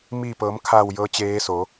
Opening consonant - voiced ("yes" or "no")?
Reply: yes